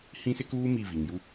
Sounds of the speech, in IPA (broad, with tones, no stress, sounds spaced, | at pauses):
h ĩ˦ s ɪ˦ k uː˦ m i˦˨ v i˨ ŋ j u˦